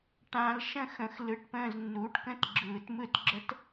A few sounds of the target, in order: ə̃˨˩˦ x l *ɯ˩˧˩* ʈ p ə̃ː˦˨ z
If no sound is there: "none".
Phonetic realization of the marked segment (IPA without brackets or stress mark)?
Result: ɯ˩˧˩